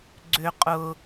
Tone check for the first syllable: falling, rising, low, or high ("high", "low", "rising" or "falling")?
low